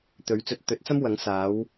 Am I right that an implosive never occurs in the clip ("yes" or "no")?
yes